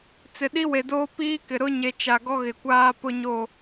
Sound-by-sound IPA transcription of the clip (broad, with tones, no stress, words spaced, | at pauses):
t͡sɪ˨ɗi˦we˨doː˦ piː˦kɪ˨ ɾʊ˦ɲe˨ t͡ʃa˨ɡɔ˦ɣɪ˨ kʷaː˦pʊ˦ɲo˦˨